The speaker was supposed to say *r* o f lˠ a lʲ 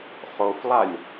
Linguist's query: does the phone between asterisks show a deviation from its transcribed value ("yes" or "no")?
yes